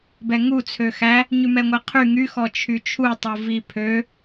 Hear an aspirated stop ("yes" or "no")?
yes